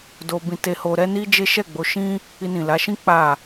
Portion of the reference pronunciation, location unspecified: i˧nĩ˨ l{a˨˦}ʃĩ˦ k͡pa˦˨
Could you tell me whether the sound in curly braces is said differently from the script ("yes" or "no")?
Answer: no